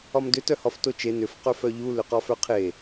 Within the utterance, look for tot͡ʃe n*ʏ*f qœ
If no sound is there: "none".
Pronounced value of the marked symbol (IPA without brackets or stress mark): ʏ